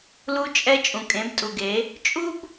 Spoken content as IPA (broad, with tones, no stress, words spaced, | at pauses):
lu˧t͡ʃʼɛ˧ t͡ʃʼũ˨kʼẽ˨˦btʼu˨ɡe˨˦ | t͡ʃʼu˦b